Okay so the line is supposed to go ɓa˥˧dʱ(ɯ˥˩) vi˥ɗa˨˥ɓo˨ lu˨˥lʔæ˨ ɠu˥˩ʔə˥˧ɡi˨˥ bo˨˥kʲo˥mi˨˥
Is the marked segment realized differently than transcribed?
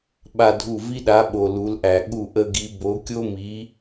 yes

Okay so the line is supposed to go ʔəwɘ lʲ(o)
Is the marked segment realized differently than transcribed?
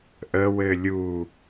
yes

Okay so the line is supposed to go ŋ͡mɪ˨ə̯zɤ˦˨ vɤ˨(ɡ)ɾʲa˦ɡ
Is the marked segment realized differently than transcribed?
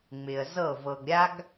no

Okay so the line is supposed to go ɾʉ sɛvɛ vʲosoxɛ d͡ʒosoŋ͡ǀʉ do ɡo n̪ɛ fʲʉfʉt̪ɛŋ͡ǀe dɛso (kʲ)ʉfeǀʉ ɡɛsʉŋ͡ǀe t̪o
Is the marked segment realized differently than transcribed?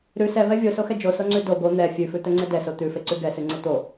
yes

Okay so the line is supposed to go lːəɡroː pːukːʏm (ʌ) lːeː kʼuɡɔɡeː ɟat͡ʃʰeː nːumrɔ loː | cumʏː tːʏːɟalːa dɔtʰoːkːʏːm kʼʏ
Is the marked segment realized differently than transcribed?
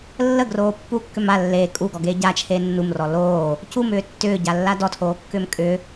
yes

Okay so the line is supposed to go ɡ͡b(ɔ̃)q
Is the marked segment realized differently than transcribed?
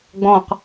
no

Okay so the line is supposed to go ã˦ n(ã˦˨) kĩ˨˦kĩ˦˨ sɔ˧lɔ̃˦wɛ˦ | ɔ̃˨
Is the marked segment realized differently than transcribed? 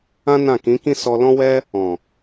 no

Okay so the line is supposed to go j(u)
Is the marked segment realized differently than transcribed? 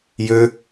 yes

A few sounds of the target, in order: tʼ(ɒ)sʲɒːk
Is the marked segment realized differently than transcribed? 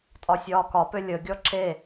no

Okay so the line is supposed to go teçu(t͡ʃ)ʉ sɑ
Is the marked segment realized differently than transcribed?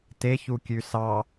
yes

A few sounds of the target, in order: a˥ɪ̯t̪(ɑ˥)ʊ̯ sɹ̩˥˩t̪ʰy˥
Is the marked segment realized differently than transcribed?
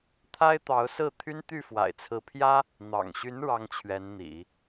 yes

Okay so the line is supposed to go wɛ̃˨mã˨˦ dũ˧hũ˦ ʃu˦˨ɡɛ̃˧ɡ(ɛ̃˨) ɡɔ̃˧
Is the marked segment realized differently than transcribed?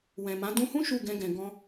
no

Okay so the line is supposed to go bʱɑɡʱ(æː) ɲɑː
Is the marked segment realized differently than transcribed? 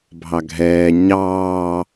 yes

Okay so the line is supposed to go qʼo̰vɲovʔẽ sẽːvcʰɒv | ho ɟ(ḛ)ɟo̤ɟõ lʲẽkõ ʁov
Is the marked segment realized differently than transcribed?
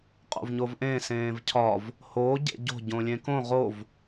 no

